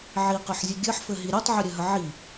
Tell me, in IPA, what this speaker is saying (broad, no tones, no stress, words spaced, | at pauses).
ʕiqɯħzʲɘ ɡʲɘħfɘɦi ɾʲotˤʕɘɾʲɘɦə ʕi